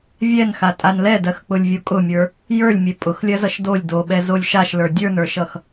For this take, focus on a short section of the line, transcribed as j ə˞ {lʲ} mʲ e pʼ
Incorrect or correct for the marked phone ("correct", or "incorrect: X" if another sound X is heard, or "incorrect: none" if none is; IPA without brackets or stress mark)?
correct